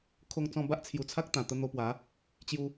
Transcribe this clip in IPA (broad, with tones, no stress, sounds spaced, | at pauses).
kʰ o˧ ŋ t͡s ɔ̃˧ b a˦ ʔ t͡sʰ j u˨˩ t͡sʰ a˦ k̚ t̪ ã˨˩ t̪ ə˧ n̪ o˧ p w a˨˦ | t͡ɕ j u˧